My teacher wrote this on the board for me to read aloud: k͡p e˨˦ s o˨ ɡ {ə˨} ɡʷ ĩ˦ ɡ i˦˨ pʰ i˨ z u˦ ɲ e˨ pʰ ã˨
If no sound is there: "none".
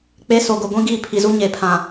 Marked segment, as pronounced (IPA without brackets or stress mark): ʊ˨